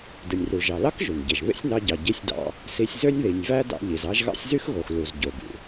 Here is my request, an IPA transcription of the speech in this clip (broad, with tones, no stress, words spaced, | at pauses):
dɯ˩nʲru˩ʒɑ˩lɑ˥k ʒu˩nɟe˩ʒ βḛ˥sʲnɑ˧ɟɑ˩ ɟi˧sʲdɑ̰˧ | si˧sʲzø˥nʲ ði˩nʲvæ˥ dɑ̰˧ʎi˩zɑ˥ʒɣɑ̰˥sʲ zy˥xɣo˩x lu˩zɟo˩bṵ˩